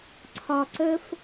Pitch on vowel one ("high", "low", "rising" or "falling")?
low